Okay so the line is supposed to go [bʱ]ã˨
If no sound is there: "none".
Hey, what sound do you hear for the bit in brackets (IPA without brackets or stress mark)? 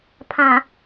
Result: pʰ